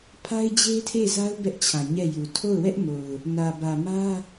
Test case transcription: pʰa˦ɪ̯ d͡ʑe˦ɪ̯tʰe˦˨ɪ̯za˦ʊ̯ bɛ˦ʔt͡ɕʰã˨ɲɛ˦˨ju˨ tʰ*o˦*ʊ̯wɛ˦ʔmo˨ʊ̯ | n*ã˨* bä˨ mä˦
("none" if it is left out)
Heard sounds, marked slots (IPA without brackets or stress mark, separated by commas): o˦˨, ä˨